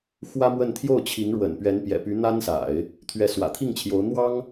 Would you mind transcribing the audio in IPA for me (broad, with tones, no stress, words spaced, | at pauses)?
xwä˥mwə˥˧n t̪ʰjo˥˩ʊ̯t͡ɕʰi˧˥ŋɻwə̰˨˩n pɥɛ˧˥npjɛ̰˨˩py˧˥ n̪a˥nsa̰˨˩˦ɪ̯ | t̪ʰɥɛ˧˥swä̰˨˩t̪ʰi˥˩ŋt͡ɕʰjo˧˥ʊ̯ n̪wɑ˥ŋ